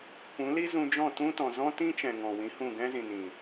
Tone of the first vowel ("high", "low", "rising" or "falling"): rising